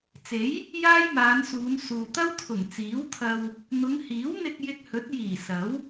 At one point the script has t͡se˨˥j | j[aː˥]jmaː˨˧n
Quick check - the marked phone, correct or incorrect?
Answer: correct